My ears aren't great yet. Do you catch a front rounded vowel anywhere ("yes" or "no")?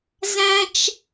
no